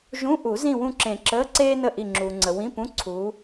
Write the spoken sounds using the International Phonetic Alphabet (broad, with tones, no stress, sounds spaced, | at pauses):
ʒ ũ˧˥˧ ʔ u˨˩˦ z ĩ˦˨ w ũ˦˨ ǁ ẽ˨˩˦ ǁ əː˧˥˧ ǀ eː˥ n ə˦˨ ʔ i˦˨ ŋ͡ǁ uː˨ ŋ͡ǀ ə˨ w ĩ˧˥˧ p ũ˧˥˧ ǀʰ uː˨˦